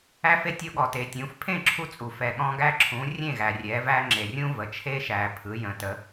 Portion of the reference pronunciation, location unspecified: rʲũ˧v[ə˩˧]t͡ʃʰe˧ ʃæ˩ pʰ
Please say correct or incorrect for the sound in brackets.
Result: incorrect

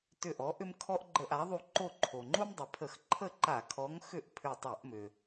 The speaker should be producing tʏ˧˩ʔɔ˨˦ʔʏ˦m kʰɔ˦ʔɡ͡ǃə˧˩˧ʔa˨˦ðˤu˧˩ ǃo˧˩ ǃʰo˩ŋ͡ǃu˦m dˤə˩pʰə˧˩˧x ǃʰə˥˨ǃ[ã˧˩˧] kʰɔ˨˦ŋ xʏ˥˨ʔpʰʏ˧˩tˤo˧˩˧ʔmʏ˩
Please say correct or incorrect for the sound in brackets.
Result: incorrect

